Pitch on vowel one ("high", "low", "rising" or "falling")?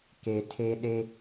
low